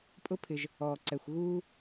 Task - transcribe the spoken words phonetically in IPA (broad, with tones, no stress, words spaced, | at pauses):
pʼʊ˥pʰɪ˨ʒ | ɔː˩ǀɛ˩xʷ ɣuː˥